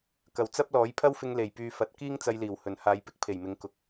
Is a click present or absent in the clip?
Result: absent